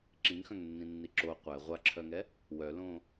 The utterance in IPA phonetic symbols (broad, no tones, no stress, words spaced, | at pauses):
ǁĩŋxœ̃ŋnːĩnːi ǁo qʷɛ ʁʷaǁʰœŋɛ | wœlõ